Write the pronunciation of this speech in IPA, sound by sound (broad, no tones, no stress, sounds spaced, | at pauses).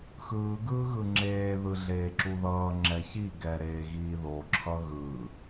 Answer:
x ɯː ɡ ɯː ɣ ɯ ŋ͡ǁ eː ð ɯ ɮ eː ǁ u ð ʌː ŋ͡ǁ ɛ ç i ɡ ɛ ɾ eː ɣ iː ð o ǁʰ ʌ ɣ ɯ